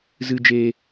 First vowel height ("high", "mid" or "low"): high